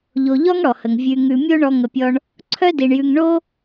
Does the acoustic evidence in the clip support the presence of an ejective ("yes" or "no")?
no